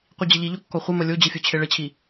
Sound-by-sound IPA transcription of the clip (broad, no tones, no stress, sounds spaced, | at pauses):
qʷ i d͡ʑ ə ʎ i ʎ o kː ɔ χʷ ə m ə lʲ o d͡ʑ ɨ fʲ o t͡ɕʰ e ɭ ə t͡ɕʰ i